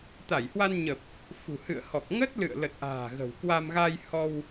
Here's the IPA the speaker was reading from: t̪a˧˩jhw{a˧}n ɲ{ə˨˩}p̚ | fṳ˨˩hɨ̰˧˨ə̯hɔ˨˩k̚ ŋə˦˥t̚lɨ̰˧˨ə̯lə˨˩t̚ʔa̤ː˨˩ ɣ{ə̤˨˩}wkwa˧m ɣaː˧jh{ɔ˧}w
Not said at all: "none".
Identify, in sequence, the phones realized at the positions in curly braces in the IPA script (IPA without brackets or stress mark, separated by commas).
a˧, ə˨˩, ə̤˨˩, ɔ˧